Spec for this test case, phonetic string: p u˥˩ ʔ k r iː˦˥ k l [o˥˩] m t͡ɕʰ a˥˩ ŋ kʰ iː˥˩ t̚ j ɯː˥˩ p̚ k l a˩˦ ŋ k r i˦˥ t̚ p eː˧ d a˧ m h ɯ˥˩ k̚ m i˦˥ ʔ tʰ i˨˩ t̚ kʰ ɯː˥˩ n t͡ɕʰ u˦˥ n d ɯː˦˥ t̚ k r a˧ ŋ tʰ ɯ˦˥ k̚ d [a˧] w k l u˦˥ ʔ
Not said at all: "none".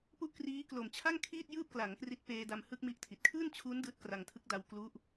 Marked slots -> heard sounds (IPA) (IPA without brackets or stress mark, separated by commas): o˨˩, a˧